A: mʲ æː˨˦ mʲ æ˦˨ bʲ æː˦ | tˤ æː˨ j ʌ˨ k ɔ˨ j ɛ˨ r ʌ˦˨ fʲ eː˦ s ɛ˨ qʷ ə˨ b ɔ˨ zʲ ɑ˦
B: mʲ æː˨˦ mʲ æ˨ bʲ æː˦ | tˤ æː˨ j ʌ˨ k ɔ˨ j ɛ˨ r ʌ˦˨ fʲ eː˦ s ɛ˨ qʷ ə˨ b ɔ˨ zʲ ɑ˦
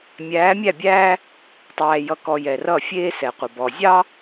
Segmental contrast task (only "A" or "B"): A